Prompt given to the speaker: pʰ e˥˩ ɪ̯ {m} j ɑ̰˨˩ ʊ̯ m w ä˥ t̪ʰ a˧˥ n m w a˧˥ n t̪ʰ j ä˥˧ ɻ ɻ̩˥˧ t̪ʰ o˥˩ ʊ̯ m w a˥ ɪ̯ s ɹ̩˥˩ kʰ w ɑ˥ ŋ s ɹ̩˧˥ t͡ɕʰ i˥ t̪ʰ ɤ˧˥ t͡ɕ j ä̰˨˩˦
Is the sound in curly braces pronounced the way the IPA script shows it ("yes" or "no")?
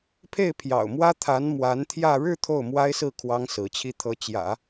no